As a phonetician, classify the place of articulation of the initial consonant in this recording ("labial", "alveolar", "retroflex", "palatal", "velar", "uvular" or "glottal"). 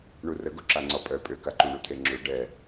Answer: retroflex